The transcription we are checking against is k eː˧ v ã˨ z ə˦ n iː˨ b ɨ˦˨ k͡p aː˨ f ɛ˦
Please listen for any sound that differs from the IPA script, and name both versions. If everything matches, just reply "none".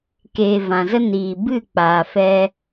none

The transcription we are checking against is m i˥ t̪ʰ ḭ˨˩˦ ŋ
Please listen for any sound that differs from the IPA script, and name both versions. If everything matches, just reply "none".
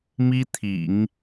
none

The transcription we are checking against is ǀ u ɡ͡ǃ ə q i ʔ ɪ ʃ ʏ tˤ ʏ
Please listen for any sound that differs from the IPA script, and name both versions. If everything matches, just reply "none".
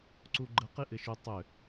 none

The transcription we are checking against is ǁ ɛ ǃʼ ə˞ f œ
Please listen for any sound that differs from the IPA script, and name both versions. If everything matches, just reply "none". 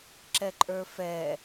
œ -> ɛ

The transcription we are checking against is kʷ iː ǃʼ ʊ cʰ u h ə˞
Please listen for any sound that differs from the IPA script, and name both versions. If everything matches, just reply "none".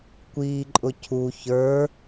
h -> ç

